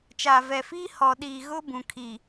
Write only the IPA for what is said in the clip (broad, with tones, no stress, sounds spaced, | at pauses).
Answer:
t͡ʃ aː˨ v ɛ˨ f iː˦ h ɔ˨ ɗ iː˨ ɣ ʊ˦ b ũ˨ kʰ i˨